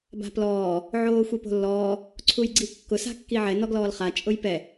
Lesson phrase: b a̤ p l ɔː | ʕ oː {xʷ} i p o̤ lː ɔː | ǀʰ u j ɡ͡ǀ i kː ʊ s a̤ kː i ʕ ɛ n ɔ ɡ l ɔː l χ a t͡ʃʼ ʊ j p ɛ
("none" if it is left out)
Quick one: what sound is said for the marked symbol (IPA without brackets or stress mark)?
xʷ